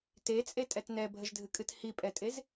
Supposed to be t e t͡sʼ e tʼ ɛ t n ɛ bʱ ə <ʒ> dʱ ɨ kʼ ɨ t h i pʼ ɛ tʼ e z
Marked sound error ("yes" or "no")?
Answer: no